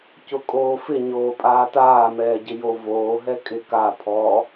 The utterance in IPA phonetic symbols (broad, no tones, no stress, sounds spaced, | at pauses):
c ʊ kʼ oː f ɪ ɲ oː pʼ aː t aː m ɛː ɟ ɪ j o v oː ɦ ɛ kʼ ɪ k a pʰ ɔ